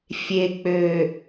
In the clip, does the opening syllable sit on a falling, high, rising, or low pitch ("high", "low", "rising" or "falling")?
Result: low